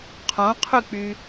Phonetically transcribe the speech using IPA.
qʰõqʰyk͡py

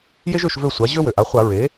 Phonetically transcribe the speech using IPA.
je˥ʒø˦˨ʃvø˦˨sʷa˩˥ ʑø˥ wø˩ʔa˩˥χʷa˧˩˧ ɹe˩˥

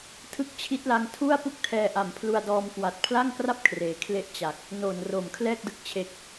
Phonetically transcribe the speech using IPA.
tʰɯ˦˥k̚t͡ɕʰi˦˥t̚la˧ŋ tʰu˥˩a̯ pu˥˩k̚tʰɛː˧ʔa˨˩mpʰlu˧a̯ dɔː˧mkwa˨˩t̚ pʰla˥˩ŋkra˥˩p̚ kʰreː˩˦kʰle˦˥ʔ t͡ɕa˨˩k̚ | noː˨˩nro˨˩mkʰlɛː˥˩k̚dɯ˦˥k̚ t͡ɕʰe˨˩k̚

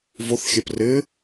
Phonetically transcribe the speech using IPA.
vʊθ xʲɛprɪ

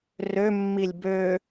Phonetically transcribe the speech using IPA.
rø mːilʲbø

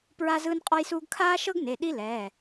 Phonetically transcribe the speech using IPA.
pɹa˥zɯː˥nqʼɔ˥jsuː˥ɡ kʰaː˥ʃɤ˥ɡne˩˧˩ ɗi˥lɛː˩˧˩

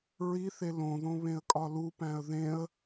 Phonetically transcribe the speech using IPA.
ɹiθe lõðõ βẽə̯kʼɒlupæ̃ə̯ ðẽə̯

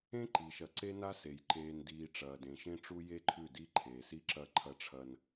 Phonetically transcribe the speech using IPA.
ẽ˦ ǃiː˨ʃɐ˨ ǀe˦na˦se˨j ǃeː˨ndiː˨ ʈ͡ʂɐː˨dẽ˨ʃẽ˦ʈ͡ʂu˦ je˦ǃʰʉ˦˨di˦ ǃʰeː˨si˦ǁɐ˦˨ ǃʰɐ˦ʈ͡ʂʰɐ˦n

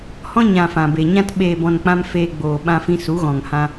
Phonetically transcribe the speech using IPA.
hɔ̃˧ ɲã˨ fã˨be˨ɲã˦t ɓeː˨bɔ̃˨n k͡pã˦mfeː˧ɡ͡boː˨ ɓã˧fĩ˧su˨˦ ɣɔ̃˨ŋhã˧

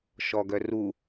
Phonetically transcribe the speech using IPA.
ʃɔɡœru

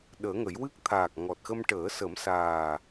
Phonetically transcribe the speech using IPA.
ɗəː˨˩˦ŋə˨˩˦jwɨ˦˥k̚ t̪ʰaː˨˩k̚ŋɔ˨˩t̚xə˧mʈəː˨˩˦ sə˨˩˦msaː˨˩

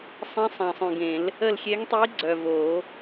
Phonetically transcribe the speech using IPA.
sˤĩ˧˥sˤã˨sˤœ̃˨ɡẽ˨˩˦l | ə˦˨lxʲe˧˥ŋtˤi˧˥ ɡ͡ǀœ˨vo˨˩˦

